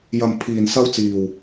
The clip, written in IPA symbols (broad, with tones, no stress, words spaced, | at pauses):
jɐ˨mpʰiː˨nsɐ˧wt͡siː˨w